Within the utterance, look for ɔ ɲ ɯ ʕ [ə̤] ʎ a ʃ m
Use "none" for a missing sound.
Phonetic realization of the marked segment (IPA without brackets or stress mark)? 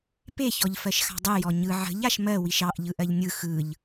ə̤